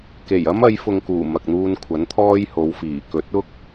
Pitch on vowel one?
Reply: low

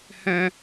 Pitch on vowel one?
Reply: high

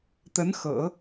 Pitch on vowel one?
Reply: rising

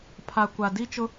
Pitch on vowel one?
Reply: low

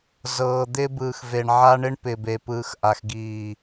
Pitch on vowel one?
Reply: low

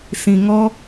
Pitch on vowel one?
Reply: low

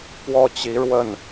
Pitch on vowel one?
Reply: falling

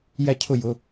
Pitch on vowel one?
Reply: falling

